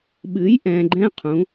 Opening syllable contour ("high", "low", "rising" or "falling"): rising